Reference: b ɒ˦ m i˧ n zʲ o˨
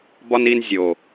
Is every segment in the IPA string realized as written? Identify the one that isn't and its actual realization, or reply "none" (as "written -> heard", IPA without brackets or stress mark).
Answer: m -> n